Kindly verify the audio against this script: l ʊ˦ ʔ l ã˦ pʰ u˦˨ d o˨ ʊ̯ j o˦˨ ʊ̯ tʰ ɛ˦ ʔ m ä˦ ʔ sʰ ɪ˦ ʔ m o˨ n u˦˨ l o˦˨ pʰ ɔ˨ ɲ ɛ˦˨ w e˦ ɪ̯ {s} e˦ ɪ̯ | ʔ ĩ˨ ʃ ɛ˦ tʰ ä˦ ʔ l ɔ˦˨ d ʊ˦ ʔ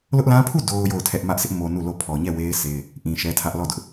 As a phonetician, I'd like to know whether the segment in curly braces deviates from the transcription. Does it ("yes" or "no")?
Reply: no